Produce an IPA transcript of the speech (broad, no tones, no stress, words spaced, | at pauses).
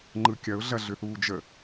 ŋ͡ǃɯkʲɐʊ̯ɮɐ ɮʏθuːd͡ʒə